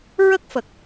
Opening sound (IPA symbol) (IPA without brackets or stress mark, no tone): ɹ